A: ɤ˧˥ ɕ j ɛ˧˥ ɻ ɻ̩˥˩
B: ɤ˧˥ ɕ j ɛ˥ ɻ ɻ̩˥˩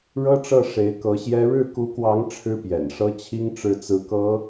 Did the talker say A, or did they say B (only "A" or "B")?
B